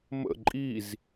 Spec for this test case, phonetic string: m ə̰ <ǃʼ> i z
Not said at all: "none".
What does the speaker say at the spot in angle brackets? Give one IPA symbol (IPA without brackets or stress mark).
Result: ǃʼ